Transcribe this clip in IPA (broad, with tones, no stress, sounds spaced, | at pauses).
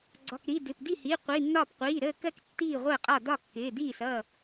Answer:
ɡ͡ǀ ɒ˩˧˩ k ɾ i˩˧˩ d ɪ˩˧˩ p d i˥˩ h i˩˧˩ qʷ i˩˧˩ nː ɒː˥˩ p qʷ iː˩˧˩ ɾ əː˥˩ k ɜ˥˩ k tː iː˥˩ ʁʷ əː˥˩ qʼ ɒ˥˩ d ɒ˥˩ kː ɪː˩˧˩ d iː˥˩ s ʌː˥˩